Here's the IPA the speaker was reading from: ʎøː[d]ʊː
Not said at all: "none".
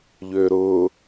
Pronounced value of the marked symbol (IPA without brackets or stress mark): ɾ